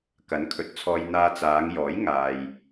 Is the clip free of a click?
yes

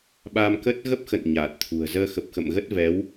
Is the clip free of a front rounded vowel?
yes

